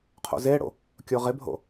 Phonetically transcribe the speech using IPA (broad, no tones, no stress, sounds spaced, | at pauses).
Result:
qʰ o̰ z e ɽ o̰ | kʲ o ʁ ɪ bʱ o̰